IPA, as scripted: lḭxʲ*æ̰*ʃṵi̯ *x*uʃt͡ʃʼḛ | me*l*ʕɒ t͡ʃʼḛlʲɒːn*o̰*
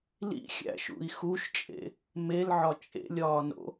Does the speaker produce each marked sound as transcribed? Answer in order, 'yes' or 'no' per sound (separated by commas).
yes, yes, yes, yes